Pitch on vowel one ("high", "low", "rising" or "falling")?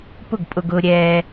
falling